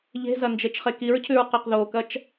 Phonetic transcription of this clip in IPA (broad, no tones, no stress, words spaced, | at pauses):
ʎe̤zɐ nd͡ʒet͡ʃχekiɹcʰʉɹ qeqðokɐt͡ʃ